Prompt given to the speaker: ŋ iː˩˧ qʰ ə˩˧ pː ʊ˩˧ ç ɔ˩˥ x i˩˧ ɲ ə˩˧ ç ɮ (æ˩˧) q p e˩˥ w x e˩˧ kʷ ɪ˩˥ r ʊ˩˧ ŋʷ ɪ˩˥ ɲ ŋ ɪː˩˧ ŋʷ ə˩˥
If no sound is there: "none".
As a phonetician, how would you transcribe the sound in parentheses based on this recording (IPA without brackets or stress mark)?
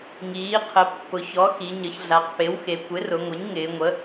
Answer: a˩˧